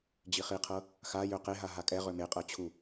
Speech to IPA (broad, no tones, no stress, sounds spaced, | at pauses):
d͡ʑ i χ i qʰ ɤ | x a j ø q e ɦ a ɦ a kʼ ɛ ʁ ø m e qʼ ɤ t͡ɕʰ u